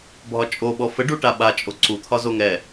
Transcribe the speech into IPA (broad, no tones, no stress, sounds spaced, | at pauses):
bʱ ɒ t͡ʃʼ o ɓ ɔ f ə ɖ u ʈ a ɓ a t͡ʃʼ o ǀ u t̪ʰ ɒ z o ŋ ɛ